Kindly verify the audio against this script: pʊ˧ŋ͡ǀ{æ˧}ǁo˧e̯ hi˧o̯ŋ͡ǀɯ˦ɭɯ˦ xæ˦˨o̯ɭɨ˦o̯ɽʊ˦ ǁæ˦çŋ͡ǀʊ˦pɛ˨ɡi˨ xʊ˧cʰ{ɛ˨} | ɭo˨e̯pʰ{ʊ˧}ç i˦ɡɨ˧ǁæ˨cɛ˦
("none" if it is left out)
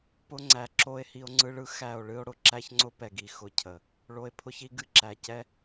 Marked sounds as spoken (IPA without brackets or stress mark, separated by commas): æ˨, ə˨, ʊ˦